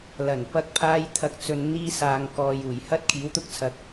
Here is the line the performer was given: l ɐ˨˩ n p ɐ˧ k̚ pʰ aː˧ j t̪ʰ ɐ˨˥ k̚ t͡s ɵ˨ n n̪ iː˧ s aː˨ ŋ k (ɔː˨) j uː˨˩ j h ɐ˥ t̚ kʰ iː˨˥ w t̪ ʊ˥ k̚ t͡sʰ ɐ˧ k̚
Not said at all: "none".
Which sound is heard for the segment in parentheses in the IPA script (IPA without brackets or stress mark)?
ɔː˨